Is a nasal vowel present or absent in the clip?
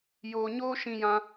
present